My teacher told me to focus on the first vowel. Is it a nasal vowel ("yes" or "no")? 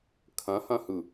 yes